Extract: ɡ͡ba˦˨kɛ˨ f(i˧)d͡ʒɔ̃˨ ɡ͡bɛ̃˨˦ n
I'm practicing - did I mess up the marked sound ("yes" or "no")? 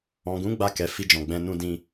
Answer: no